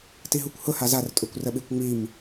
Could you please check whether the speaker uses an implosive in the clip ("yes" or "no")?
yes